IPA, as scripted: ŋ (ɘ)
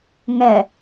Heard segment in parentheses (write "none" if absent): ɛ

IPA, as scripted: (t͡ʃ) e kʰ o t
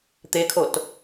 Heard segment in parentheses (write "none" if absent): t̪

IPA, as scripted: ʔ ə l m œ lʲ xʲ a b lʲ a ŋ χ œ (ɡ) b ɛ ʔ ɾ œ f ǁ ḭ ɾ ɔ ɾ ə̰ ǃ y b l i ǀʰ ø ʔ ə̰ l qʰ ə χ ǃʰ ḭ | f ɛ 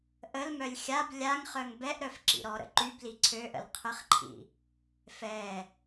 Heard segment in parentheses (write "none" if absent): ŋ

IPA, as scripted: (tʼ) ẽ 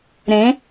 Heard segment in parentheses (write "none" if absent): ɾ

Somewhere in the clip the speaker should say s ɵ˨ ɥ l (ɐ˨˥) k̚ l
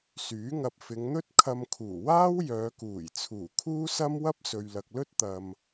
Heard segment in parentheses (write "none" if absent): ɐ˨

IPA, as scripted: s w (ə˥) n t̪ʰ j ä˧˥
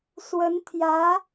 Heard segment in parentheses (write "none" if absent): ə˧˥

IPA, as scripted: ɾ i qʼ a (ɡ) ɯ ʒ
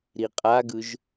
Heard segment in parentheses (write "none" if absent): ɡ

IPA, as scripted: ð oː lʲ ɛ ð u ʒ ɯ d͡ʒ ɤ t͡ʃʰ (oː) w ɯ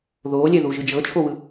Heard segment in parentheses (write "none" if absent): o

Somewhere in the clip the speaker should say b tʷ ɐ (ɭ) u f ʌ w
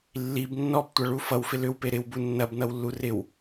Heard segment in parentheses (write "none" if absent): ɭ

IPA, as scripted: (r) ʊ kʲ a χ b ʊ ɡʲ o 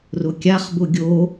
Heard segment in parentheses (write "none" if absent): r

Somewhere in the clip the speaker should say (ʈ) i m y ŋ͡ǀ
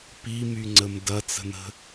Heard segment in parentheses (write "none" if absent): p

